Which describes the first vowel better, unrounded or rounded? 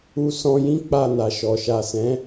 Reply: rounded